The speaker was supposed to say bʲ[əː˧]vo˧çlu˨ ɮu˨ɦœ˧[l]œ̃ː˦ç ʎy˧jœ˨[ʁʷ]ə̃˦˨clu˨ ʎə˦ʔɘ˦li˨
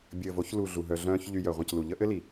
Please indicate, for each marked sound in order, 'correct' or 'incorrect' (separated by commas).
incorrect, incorrect, correct